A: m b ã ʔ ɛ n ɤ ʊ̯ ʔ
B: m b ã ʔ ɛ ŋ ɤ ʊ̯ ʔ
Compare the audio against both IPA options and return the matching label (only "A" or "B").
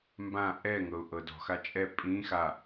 B